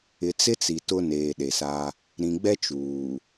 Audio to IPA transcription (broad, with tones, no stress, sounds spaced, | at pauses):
ɪ˨ t͡s ɪ˦ t͡s i˨ t ʊ˦ n eː˨ ɗ e˨ s a˦ | ɾ ĩ˨ ɡ͡b ɛ˦ t͡ʃ uː˨